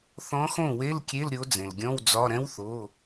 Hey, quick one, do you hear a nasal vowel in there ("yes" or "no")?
yes